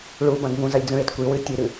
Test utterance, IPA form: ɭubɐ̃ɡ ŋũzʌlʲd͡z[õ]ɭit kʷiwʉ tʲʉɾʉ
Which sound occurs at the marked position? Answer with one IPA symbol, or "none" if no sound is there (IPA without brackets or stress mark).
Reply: ũ